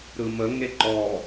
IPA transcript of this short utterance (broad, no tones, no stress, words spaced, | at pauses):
ɾɯməŋe ǃɔ